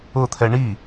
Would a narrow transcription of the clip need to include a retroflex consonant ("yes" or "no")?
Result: yes